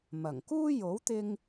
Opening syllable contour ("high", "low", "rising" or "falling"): low